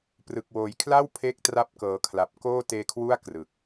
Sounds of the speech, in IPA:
p r ɯ˨˩ k̚ w oː˨˩ j kʰ l a˥˩ w pʰ eː˦˥ k̚ t r a˦˥ p̚ k ɤː˩˦ kʰ l a˨˩ p̚ k oː˥˩ t eː˧ kʰ w u˥˩ a̯ k r ɯ˨˩ k̚

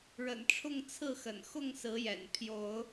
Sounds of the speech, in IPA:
ɻ ə̰˨˩ n ʈ͡ʂʰ ʊ˥˨ ŋ t͡sʰ ɹ̩˥˨ x ə̰˨˩ n x ʊ˥˨ ŋ s ɹ̩˨˦ j ɛ̰˨˩ n pʰ j o˨˦ ʊ̯

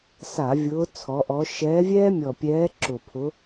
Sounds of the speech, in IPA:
s a˧˩˧ vʲ ʊː˨˦ t͡sʰ ɔ˨˦ ʔ ɔ˨˦ ʃ ɛː˨˦ vʲ ɛː˦ mʲ ɔ˨˩ pʲ ɛː˨˦ ǁ ʊ˨˩ pʰ ʊ˨˦

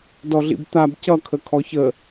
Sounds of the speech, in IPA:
d ɔ ɮ ḭ b t̪ a b c ʌ kʰ ə kʰ ɔ ç ə

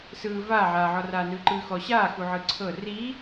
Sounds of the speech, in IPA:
s ɯː v aː ʕ aː ʕ ɔ r aː n ɯː ǃ ɯː x ɔ ɕ aː x u ʕ ɯ ǀʰ ɤ r i

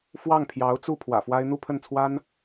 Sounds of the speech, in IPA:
f w ɑ˥˩ ŋ pʰ j ɑ˧˥ ʊ̯ t͡s u˥˩ pʰ w ä̰˨˩ f w a˥ ɪ̯ n̪ u˥˧ pʰ ə˥˩ n t͡sʰ w a˥ n

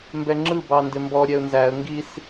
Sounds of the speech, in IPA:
m b ɛ ŋ͡ǁ ɯ b ɑ n d ɪ m b ɔ ɾʲ ɛ ʊ̯ n z æ ə̯ ŋ ɡ i s

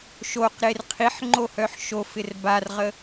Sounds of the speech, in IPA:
ʃ o q ɾ e r qʰ i ħ ŋ͡ǃ o h œ ħ ʃ o f ɪ r b a r ʁ ə

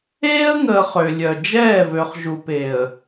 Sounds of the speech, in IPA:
eː˦ ə̯ ŋ əː˨ χ ø˨ lʲ œ˨ d͡ʒ ɛː˦˨ v ø˨ χ ʒ u˨ p e˨ ə̯

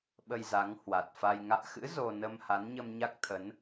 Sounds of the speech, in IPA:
ɓ ə˧ j z a˨˦ ŋ h w a˨˩ t̚ f a˧ j ŋ a̰ː˧˨ x ɨ̰˧˥ z o˧ n ə˧ m h a˨˦ n ɲ ə˧ m ɲ a˦˥ k̚ t̪ʰ ə˨˦ n

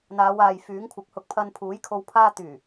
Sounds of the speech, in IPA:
n̪ aː˨˧ w aː˨ j f yː˨˥ ŋ kʷʰ ɪ˨˥ k̚ h ʊ˧ k̚ pʰ ɐ˧ n pʰ uː˨˥ j kʰ o˧ w pʰ aː˧ t̪ yː˨˩

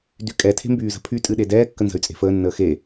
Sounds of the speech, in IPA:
d y kʼ ɛ tʰ e̤ m b yː z ə̤ pʰ y tʼ ɨ ɗ e d ɛː kː ə n z ə̤ y̯ t͡sʼ e̤ f əː nː əː x e

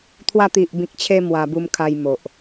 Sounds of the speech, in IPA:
t̪ʰ w a˧ t̪ i˨ ʔ b ĩ˨ k̚ t͡ɕʰ e˧ m w a˧ b u˧ m kʰ a˧ j m o˨ ʔ

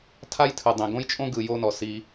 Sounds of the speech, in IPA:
tʰ a˦ j tʰ ɯ˨ dˤ ĩ˨ ɡ õ˦ j t͡ʃʼ õ˦ ɡ ɯ˧ j o˦ n ɔ˨ s i˧

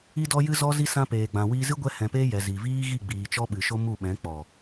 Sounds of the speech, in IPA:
i˧ d ɔ˧ j ɨ˧ z ɔ˧ z i˧ s ã˧ p eː˨ ɡ͡b ã˨ w iː˧ z ɨ˦ ɡʷ ɛ˧ h ɛ̃˨ p eː˧ j ɛ˨ z i˨ v iː˦ ɣ i˦˨ ɡ͡b iː˨ t͡ʃ ɔ˧ ɓ ɨ˨ ʃ o˦ m u˦˨ ɓ ɛ̃˨˦ k͡p ɔ˨

